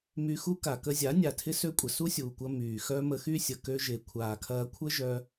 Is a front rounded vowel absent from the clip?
no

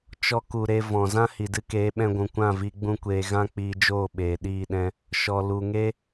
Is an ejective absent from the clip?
yes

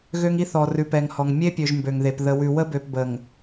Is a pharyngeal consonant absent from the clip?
yes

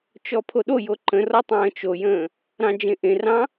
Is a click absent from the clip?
no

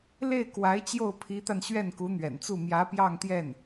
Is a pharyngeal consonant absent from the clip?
yes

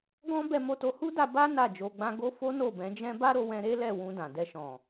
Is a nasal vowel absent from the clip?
no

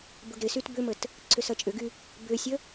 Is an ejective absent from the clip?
no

